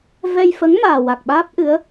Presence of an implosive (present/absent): present